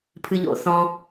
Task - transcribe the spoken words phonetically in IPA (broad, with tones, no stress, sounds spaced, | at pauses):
pʰ ɨ˧ ʎ o̰˧˩˧ θ ɔ̃˧